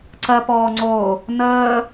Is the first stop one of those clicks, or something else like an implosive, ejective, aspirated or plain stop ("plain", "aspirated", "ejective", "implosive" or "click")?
click